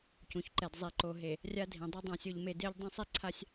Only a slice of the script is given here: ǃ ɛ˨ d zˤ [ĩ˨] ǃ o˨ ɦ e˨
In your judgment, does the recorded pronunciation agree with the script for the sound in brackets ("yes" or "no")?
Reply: no